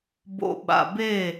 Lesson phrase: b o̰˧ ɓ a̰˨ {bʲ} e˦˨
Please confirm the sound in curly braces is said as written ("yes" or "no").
no